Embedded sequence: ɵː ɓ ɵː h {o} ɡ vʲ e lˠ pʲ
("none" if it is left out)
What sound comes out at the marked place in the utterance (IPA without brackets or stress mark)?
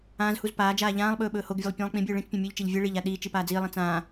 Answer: o